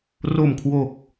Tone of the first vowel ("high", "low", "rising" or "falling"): low